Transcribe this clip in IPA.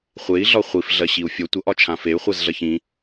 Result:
χʷ e i̯ ɮ ɒ χʷ i f ɮ ɜ ɕ i u̯ fʲ ɔ tʷ ʌ ʔ ɒ t͡ʃʰ ã f e y̯ χʷ ɜ z ɮ ɜ ç ĩ

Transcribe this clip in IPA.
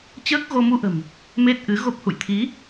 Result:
t͡ɕ əː˦˥ k̚ ɣ o˧ m u˧ ʔ ə̤˨˩ m | m e˦˥ t̚ ʔ ɨ˨˦ ɣ o˦˥ p̚ h ṵ˧˨ j t̪ʰ i˨˦

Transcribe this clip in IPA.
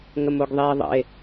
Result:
ŋ ə m o ɡ ðˤ eː ðˤ ə̰ e̯

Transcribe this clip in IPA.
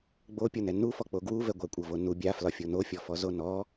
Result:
ɡ͡b o pʲ ɤ n ɛ n u f ɔ k͡p o ɡ w u v ɛ ɡʷ a kʷʼ ɤ v o n u bʲ a f l ɒ fʲ o n o fʲ ɔ f ɔ z o n ɔ

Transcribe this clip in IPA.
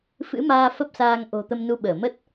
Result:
f ɨ̰˧˥ m aː˧ f ə˦˥ p̚ s aː˧ ŋ ʔ o̤˨˩ t̪ ə˧ m n u˧ ɓ əː˧˩ m ə˦˥ t̚

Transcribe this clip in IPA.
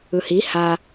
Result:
ɯ h i h a

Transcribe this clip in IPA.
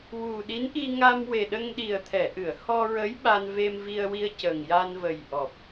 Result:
w u˨˩ ɗ i˧˥ n ʔ i˧ ŋ a˧ m w e˨˩ ɗ ə˧ ŋ ɗ i˨˩ ə̯ t̪ʰ ɛ˨˩˨ ʔ ɨ˨˩˨ ə̯ h ɔ˧ ɹ ə˧˥ j ɓ a˧ n v e˧ m v i˧ ə̯ w i˧ ə̯ c ə˨˩ ŋ j a˧ n v ə˨˩ j ʔ ɔ˨˩ p̚

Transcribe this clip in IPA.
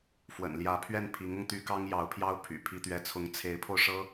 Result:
f w ə̰˨˩ n l j ä˧˥ pʰ ɥ ɛ˥˩ n pʰ i˧˥ ŋ ʊ˧ ŋ t̪ y˥ k ɑ˥ ŋ j ɑ˧˥ ʊ̯ pʰ j ɑ˥ ʊ̯ pʰ y̰˨˩ pʰ i˥ t̪ ɥ ɛ˥ t͡sʰ ʊ˥ ŋ t͡sʰ e˧˥ ɪ̯ pʰ o˧ ʊ̯ ʂ ɤ˥

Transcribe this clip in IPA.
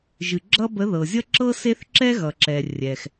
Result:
ʒ ɨ˨ ɡ͡ǁ ʌ˥ b ə˧˥ ð ɤ˨ zʲ ʌ˥ ǁ ɤ˥ s e˥ θ ǁ ɛ˥ ɣ ʌ˨ ǁ ɛ˨ rʲ ɛ˨ x

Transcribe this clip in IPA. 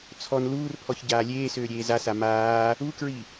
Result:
t͡sʰ ɔ n l uː r pʰ ɔ ç ɟ aː lʲ eː s øː ɾʲ eː z a s a m aː | u k ɹ i

